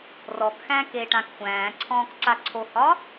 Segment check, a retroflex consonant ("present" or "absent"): present